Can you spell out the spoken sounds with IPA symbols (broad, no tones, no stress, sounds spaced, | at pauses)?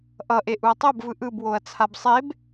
ʔ ʌ ʔ e ʔ u ɐ̯ tˤ o b v ɯ ʔ ɯ b w o ɐ̯ t͡sʰ a b sˤ e b